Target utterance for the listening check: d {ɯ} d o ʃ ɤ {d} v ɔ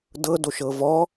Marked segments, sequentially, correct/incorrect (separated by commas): incorrect, incorrect